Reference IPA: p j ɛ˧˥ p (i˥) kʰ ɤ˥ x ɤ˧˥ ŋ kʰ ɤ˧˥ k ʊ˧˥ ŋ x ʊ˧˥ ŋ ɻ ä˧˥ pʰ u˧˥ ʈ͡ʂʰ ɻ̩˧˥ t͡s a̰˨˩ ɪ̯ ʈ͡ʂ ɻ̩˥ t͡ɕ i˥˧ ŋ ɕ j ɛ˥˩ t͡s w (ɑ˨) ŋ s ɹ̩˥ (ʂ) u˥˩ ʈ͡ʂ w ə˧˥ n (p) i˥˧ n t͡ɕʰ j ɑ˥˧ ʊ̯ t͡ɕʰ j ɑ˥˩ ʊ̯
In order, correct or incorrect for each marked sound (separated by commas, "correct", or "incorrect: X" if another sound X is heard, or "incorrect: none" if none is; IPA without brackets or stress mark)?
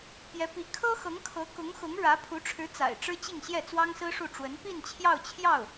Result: incorrect: i˧˥, incorrect: ɑ˥, correct, correct